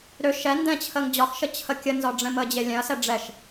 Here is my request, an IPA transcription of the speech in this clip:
ɾ ø ʃ ɛ n d ɛ̃ t͡ɕʰ ə ŋ d͡ʑ ɒ x ʃ ə t͡ɕʰ ə kʲ ə n z ɒ ɖ͡ʐ ɛ̃ m ə d͡ʑ e lʲ ɛ̃ ɐ̯ s ɛ ɖ͡ʐ ɛ ʃ

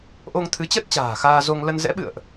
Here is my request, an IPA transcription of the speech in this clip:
ʔ o˧ ŋ t̪ʰ ɨ˨˦ t͡ɕ ə˦˥ t̚ t͡ɕ a̤ː˨˩ x aː˧ z o˧ ŋ l ə˧ n z ɛ̰˧˥ ɓ ɨ̰˧˨ ə̯ ʔ

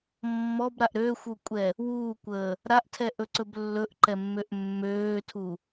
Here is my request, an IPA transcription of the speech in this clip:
mː ɔ b ɾ a ʔ ɾ øː xʷ u kʷʼ ɛ | w uː kʷ əː | ɾ a ʔ tʰ ɛ ʔ ɵ ǀ ɵ b lː ɵ ʔ ǃ ɛ mː ø ʔ mː øː tʰ u

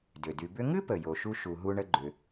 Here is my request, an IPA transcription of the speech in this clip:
d ʏ˩ d y˨ b ʏ˥ ŋ ɨ˥ p ə˩ j o˨ ʃ u˥ ʃ u˨ ɦ u˦ ɳ ə˥ ɡ͡ǃ ʏ˨

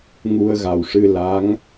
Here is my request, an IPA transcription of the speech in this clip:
ŋ u˧ ə̯ ɣ a˨˩ w ʂ ɨ˧ l a˧˥ ŋ

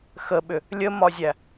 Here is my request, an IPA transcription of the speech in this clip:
x ə ɓ ʏ | lʲ ə m ɒ zʲ æ

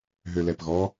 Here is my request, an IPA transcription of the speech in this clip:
ɦ ø l ɛ p ɣ ɔ

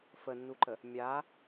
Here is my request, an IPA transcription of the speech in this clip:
f ə nː u ǃ ə | mʲ a

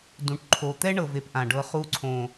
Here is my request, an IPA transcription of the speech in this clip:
d ũ˨ ʈ ǃʰ o˨ t̪ ɛ˦ ɳ ɤ˨ v e˨ p ʔ ã˨ ɖ ɤ˧ χ u˧ ǀʰ õ˨

